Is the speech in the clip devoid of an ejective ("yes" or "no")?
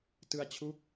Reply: yes